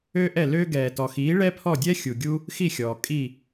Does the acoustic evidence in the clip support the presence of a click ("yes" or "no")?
no